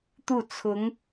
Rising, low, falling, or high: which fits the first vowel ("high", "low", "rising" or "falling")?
falling